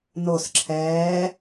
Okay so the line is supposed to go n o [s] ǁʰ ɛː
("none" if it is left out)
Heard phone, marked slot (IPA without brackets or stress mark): s